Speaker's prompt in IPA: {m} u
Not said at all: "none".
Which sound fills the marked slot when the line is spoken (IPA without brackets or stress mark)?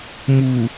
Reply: m